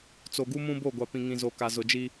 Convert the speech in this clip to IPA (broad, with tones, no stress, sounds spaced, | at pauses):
t͡s o˨ ɡ u˦ m ũ˦ b o˦˨ ɡʷ a˨ p ĩ˨ ŋ ĩ˨ z o˨ k a˨ z ʊ˨ d͡ʒ i˦